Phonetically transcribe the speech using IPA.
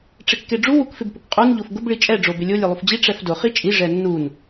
ʈ͡ʂɪkːeɖ͡ʐu wukfɪbpʊkqʼun ʎofɡʊb ɭit͡ʃʼɛ ɖ͡ʐobɪlʲo lʲelˠufd͡ʑi ʈ͡ʂɛfdʊ χit͡ʃʼi ʐɛnːun

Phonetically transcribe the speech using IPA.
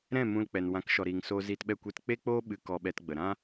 ɾɛ̃˦˨mũ˧lk͡pɛ˨n wã˨˦kʃɔ˨ɾiː˨ŋsoː˧ ziː˧tɓɛ˦˨ kʷe˧tk͡pe˦k͡poː˦ ɓɨ˧ kɔ˧ɓɛ˧tɡ͡bə˨ ɾã˦

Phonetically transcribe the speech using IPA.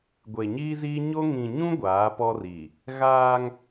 ɡʷe˨ɲiː˦ziː˦ ɲo˦ ŋĩ˨ ɲũ˦ ɡʷaː˨˦pɔ˦ri˨ | ɣaː˦ŋ

